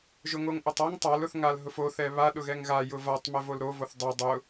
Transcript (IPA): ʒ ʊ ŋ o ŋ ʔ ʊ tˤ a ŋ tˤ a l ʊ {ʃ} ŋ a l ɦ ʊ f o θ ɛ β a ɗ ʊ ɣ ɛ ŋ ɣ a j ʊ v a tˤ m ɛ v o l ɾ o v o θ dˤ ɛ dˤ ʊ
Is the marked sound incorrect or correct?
incorrect